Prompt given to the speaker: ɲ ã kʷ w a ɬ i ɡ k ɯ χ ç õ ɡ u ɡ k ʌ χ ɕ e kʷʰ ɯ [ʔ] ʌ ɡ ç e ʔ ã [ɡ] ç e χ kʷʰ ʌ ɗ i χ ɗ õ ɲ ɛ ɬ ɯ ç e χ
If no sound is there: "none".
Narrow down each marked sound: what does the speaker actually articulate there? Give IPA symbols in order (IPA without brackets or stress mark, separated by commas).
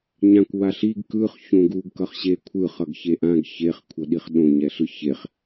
χ, ɡ